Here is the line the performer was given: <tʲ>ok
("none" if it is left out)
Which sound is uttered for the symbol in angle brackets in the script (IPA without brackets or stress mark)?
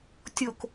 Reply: tʲ